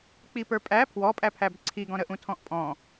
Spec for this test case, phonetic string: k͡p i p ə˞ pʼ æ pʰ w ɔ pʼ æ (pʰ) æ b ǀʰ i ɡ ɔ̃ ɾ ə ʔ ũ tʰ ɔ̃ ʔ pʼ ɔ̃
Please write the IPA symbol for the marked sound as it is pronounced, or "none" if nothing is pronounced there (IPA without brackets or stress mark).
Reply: pʰ